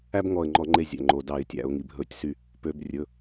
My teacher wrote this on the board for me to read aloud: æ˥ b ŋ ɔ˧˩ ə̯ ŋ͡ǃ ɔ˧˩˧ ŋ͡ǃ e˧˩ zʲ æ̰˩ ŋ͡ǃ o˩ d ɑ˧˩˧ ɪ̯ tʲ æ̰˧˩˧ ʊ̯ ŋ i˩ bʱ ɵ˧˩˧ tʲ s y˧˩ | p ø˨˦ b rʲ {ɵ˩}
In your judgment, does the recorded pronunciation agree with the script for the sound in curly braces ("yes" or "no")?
no